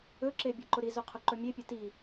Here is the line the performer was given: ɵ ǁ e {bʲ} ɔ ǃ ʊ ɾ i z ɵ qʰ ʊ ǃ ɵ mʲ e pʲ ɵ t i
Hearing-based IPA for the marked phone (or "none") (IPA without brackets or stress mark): bʲ